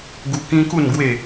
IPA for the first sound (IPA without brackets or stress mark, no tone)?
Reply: ɡ